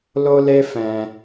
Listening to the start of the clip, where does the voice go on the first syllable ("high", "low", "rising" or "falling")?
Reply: high